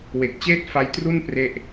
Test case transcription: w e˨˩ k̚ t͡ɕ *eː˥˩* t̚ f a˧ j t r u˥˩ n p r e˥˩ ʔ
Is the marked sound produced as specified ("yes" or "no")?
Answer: yes